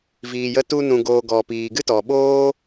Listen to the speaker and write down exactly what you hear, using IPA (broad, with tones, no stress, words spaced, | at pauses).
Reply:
viː˨jə˧ tu˧nũ˨ɡoː˨ ɡɔ˨piː˨ɡɨ˦tɔ˨ ɓoː˦